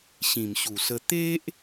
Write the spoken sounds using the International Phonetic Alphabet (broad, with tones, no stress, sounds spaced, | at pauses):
ɕ ĩ˨˩ m ɕ u˨˩ s ə˧ t̪ e˦ ʔ